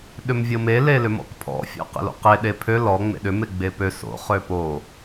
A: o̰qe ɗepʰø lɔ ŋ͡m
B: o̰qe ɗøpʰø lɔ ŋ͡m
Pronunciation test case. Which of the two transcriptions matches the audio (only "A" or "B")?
A